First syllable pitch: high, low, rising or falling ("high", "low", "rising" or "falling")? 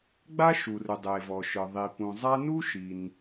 high